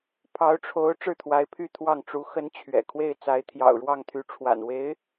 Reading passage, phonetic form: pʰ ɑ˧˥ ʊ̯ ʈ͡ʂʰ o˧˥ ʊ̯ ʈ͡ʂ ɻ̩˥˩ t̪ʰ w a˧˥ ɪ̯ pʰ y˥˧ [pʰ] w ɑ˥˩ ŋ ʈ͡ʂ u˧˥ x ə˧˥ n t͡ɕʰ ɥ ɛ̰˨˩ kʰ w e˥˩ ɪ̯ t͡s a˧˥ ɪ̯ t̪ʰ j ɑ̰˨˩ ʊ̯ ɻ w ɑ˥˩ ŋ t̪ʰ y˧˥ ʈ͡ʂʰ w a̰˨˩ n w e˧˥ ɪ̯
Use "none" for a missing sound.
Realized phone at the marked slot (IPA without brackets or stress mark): t̪ʰ